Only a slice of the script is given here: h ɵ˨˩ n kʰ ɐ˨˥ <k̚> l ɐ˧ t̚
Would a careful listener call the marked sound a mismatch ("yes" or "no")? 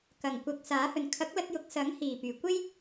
no